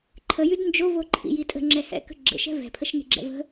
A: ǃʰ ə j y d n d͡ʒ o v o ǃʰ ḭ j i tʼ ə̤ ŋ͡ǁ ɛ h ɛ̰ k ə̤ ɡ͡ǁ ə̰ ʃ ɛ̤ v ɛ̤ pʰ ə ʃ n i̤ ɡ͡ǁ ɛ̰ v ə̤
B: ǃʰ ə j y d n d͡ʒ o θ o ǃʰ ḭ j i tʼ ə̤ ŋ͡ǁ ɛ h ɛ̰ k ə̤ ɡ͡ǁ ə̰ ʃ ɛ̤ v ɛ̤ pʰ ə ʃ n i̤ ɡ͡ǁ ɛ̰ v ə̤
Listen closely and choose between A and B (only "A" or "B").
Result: A